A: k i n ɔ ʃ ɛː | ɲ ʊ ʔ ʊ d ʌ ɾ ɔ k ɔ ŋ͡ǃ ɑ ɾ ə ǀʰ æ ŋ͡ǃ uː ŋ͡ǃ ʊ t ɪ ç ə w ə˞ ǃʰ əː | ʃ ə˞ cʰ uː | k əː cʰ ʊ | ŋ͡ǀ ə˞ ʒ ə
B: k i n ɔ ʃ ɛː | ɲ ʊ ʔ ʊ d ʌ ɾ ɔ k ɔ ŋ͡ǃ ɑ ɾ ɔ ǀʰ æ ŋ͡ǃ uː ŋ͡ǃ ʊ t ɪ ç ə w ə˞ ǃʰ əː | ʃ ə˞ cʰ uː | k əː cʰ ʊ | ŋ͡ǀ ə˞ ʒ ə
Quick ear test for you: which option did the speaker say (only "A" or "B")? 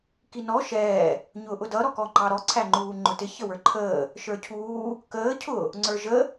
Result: B